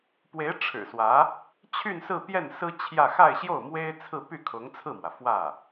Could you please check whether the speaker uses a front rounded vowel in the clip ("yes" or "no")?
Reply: yes